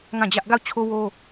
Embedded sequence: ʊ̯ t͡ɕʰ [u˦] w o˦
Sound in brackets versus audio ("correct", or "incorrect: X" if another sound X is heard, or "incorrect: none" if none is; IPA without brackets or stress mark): incorrect: o˦